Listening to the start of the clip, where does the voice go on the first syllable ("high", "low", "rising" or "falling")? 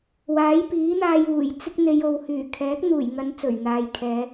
rising